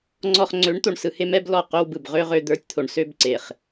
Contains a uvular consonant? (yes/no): yes